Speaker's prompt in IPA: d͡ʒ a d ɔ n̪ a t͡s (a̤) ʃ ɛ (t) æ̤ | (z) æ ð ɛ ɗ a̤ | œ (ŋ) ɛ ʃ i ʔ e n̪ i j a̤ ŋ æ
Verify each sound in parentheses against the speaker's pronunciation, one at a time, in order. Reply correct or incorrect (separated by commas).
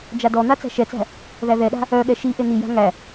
incorrect, incorrect, incorrect, incorrect